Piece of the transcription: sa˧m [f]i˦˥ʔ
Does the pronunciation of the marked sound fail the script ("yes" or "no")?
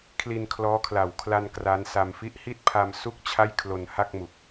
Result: no